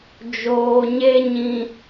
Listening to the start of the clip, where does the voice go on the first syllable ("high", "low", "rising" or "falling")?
low